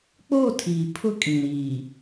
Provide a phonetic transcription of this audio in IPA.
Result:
k͡p oː˦˨ tʰ iː˨ pʰ ʊ˦ kʼ ĩ˨ ɾ iː˨

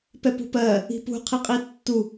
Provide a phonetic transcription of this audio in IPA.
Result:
p ɛ p ṳ p ɜ | i̤ p ṳ qʰ i qʼ i tː u

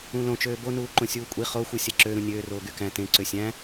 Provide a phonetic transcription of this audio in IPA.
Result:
ũ l õ t͡ʃ øː b o n uː ǃ õ sʲ uː kʷʼ i χ o xʷ ɯ sʲ æ ǁ ø ɾ ũ nʲ øː r oː ɡ y k æ̃ t ẽ ǀ ø sʲ æ̃

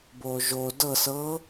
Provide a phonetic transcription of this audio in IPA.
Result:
b o ʒ o d ɤ s ɤ

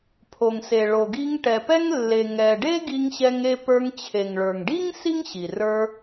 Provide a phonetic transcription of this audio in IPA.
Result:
pʰ o˩ ŋ s e˩ ɭ o˩ ɡ i˧ ŋ ʈ ɛ˩ p ɛ˥ ŋ lː e˩ ŋ ɛ˩ ɖ e˥ ɡ i˧ ŋ ɕ ɛ˧ ŋ e˧ p ə˞˧ ŋ t͡ɕʰ e˩ ŋ ɭ ə˞˩ ŋ ɖ i˥ ŋ s i˥ ŋ ɕ i˩ r ə˞˧

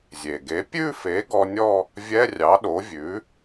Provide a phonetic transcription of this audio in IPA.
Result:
zʲ e˩ ɡ e˩˥ pʲ ʉ˥˧ f e˩˥ ɡ ɔ˧ nʲ ɔ˥˧ | vʲ ɛ˧˥˧ rʲ ɑ˩˥ ɗ o˩˥ vʲ ʉ˩˥

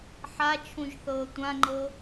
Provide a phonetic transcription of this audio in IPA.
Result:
ħ a t͡ʃʰ ũ ʒ θ ɤː tʷ ã ŋ͡ǃ ɤ

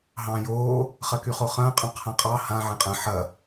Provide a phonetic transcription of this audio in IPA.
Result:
ɦ ɑ̃ː j oː | χ ɐ k y χ o χ ɐ̃ː qʼ ɑ̃ qʰ ã qʼ ɑ h ã ʕ ɛ̃ qʼ ɐ̃ ħ ɐ

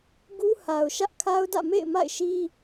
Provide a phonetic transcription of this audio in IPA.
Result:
ɡ u˦ h a˨ ʊ̯ ʃ ä˦ ʔ kʰ a˦ ʊ̯ d ä̰˦˨ m ḛ˦˨ ɪ̯ m a̰˦˨ ɪ̯ ʃ i˦

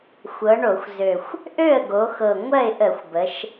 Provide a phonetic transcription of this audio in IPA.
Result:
xʷ ɤ˩˧ ɳ o˧˩˧ xʷ z ø˨˩ xʷ | ʔ ø˥˩ ə̯ ɡ o˩˧ x ɤ˨˩ ŋʷ ɜ˥˩ ɪ̯ ʔ ə˧˩˧ xʷ b ə˩˧ ʃ

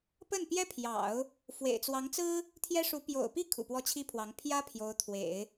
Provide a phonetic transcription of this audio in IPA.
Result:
p ə˥˩ n p j ɛ˥ pʰ j ɑ̰˨˩˦ ʊ̯ | f w ḛ˨˩ ɪ̯ t͡s w ɑ˧˥ ŋ t͡s ɹ̩˥ | t̪ʰ j ɛ˥ ʂ u˧˥ p j o̰˨˩ ʊ̯ p i˥˩ kʰ ṵ˨˩ p w ɔ˥˩ t͡ɕʰ i˥ pʰ w ɑ˧˥ ŋ pʰ j ä˥ pʰ j o˧˥ ʊ̯ t̪ʰ w ḛ˨˩˦ ɪ̯

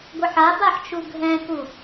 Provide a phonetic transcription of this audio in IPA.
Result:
ɡʷ ə ħ a b a ħ t͡ʃ u ɡʱ ɛ̃ k u

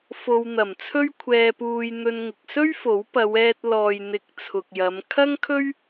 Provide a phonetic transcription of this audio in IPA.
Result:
f o˨ w n̪ ɐ˨˩ m t͡sʰ ɵ˥ ɥ kʷʰ ɛː˧ p uː˧ j n̪ ɵ˧ n ŋ ɪ˨ k̚ s ɵ˥ ɥ f o˨˥ w p ɐ˨˧ w ɛː˧ t̚ l ɔː˨ j n̪ ɪ˨˥ k̚ t͡sʰ ʊ˨ k̚ j ɐ˨˧ m kʰ ɐ˥ ŋ kʰ ɵ˥ ɥ

